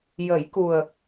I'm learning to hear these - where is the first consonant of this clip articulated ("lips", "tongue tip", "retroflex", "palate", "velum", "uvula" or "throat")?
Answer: palate